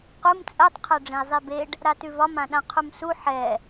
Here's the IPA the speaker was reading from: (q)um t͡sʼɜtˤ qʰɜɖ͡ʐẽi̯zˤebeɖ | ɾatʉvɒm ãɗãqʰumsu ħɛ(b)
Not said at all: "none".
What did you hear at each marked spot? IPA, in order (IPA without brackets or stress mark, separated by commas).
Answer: q, none